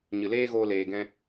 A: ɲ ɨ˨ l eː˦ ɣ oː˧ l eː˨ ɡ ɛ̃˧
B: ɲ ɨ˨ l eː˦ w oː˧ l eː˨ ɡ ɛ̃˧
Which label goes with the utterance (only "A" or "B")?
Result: A